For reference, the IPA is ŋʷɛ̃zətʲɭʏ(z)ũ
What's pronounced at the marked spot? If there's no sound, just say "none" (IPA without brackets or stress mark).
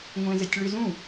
z